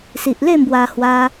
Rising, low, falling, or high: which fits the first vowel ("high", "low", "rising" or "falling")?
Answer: low